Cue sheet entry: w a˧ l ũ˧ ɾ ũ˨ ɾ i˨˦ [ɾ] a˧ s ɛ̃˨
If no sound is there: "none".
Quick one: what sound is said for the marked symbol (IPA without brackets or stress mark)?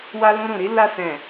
l